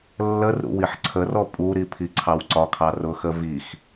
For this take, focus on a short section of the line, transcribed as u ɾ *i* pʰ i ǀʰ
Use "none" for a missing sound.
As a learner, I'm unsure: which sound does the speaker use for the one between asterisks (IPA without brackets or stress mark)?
i